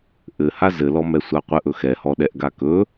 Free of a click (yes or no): yes